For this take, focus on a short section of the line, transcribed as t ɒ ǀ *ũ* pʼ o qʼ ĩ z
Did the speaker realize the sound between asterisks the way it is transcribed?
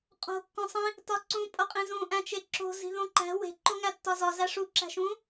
yes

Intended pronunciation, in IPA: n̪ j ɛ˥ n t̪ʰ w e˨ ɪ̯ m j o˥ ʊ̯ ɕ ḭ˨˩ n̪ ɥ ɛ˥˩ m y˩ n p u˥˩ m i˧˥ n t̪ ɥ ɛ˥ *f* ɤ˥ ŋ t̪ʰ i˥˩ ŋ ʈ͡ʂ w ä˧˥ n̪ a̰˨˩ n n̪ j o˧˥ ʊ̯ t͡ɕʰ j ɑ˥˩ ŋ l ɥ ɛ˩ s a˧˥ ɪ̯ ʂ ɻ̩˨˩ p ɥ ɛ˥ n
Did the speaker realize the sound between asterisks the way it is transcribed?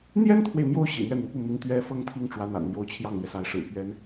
yes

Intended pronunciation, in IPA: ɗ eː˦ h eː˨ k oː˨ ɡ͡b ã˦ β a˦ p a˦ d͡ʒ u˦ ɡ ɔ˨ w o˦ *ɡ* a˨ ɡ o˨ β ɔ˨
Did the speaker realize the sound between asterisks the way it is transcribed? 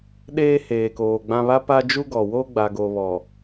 no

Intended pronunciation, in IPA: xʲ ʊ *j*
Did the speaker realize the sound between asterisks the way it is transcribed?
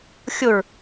no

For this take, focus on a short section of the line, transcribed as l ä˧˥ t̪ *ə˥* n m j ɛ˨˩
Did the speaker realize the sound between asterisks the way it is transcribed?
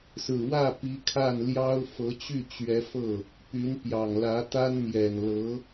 no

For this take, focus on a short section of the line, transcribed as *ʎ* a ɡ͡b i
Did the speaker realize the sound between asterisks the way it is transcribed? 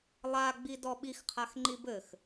no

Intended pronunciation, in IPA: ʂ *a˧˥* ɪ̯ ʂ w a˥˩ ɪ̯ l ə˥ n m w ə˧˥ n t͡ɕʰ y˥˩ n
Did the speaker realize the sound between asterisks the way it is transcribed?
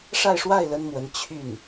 no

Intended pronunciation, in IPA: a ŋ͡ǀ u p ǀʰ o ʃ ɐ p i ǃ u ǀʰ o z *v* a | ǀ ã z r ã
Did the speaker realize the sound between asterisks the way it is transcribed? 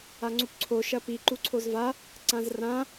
yes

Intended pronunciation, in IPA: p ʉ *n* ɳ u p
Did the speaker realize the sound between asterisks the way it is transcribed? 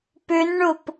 yes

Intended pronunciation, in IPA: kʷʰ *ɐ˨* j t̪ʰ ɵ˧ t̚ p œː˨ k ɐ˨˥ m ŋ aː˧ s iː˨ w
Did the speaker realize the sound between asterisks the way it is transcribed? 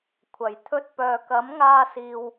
no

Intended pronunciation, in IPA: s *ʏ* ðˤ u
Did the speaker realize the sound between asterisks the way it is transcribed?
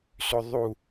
yes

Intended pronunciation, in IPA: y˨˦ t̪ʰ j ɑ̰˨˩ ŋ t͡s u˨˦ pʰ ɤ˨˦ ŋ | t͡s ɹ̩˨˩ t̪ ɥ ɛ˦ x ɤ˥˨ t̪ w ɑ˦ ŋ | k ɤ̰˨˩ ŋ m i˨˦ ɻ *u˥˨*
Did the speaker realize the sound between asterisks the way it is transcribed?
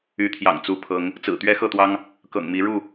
yes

